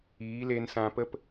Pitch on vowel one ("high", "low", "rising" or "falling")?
rising